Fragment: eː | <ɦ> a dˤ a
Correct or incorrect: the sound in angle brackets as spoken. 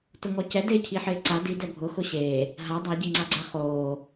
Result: correct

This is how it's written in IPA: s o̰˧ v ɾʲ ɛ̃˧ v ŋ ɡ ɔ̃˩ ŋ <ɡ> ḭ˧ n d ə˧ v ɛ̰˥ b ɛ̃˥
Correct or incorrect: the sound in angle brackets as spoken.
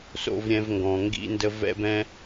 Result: correct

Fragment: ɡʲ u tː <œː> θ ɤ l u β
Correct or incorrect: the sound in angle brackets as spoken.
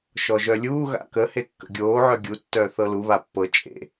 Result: correct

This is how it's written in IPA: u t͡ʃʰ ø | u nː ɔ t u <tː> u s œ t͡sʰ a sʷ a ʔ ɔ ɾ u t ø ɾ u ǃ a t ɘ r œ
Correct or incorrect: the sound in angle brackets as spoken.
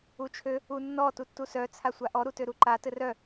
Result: correct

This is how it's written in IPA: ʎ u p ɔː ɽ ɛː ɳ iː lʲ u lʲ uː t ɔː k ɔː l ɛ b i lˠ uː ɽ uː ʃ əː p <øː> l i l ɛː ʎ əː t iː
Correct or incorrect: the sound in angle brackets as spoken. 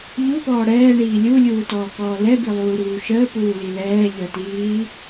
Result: incorrect: uː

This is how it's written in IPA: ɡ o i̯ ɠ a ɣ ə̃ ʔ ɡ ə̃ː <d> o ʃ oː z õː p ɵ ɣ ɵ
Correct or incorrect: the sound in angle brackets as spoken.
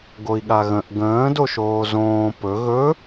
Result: correct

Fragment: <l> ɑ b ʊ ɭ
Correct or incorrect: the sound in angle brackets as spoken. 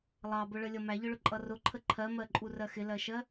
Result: incorrect: lˠ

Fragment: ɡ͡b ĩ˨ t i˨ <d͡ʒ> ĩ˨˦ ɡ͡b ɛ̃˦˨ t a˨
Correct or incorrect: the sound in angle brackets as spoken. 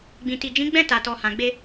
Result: correct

